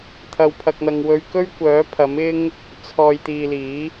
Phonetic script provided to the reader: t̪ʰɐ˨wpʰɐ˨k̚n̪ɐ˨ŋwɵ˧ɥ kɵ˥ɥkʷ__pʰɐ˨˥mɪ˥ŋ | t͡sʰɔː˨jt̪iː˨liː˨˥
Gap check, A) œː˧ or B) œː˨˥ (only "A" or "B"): B